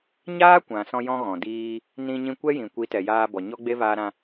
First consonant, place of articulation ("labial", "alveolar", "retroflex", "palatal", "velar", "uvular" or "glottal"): palatal